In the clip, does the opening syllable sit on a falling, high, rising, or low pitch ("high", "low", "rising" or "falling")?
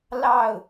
falling